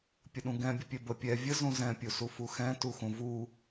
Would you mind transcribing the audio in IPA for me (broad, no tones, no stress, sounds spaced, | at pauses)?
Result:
pʲ ə ɗ ũ ɡ ɛ̃ bʲ ə pʲ ɛ b ə pʲ ɛ vʲ ə z ũ z ɛ̃ pʲ u s u f u x ɛ̃ t u x ũ v u